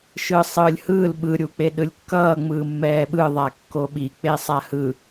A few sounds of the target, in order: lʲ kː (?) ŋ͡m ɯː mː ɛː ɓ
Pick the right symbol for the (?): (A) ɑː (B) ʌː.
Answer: B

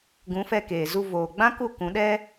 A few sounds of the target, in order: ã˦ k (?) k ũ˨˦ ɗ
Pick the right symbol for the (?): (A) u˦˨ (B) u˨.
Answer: A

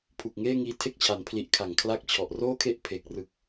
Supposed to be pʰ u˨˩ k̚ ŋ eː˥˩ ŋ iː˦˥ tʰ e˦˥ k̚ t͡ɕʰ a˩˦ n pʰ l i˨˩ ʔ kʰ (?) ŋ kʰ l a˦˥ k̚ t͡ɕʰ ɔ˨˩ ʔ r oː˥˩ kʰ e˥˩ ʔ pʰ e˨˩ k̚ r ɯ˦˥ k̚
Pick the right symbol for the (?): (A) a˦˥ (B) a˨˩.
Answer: B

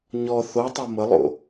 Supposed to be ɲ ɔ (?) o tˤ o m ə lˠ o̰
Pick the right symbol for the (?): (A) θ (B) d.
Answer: A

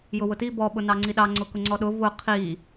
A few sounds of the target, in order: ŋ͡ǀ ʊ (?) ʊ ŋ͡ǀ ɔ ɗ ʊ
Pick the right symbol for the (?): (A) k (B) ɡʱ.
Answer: A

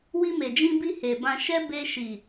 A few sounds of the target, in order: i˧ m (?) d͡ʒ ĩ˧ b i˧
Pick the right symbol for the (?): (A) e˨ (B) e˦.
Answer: A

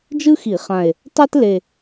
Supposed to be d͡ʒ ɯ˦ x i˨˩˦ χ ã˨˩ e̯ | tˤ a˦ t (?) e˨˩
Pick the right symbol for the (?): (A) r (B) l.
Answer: B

